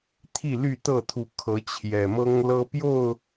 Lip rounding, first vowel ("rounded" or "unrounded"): unrounded